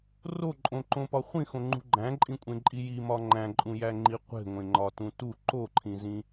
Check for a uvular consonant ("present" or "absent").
present